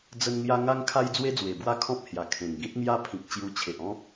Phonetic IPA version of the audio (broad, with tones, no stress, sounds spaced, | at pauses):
d͡z ə˧ n ŋ j a˧ ŋ a˧ ŋ kʰ a˧ j d͡z w e˧ d͡z w e˨˩ b w a˦ kʰ ɔ̃˦ p̚ h j a˨˩ kʰ ẽ˨˩ ŋ ɡ ĩ˦ t̚ ŋ j a˦ pʰ ĩ˨ k̚ t͡ɕ j u˧ t͡ɕʰ e˨ ʔ ɔ̃˦ k̚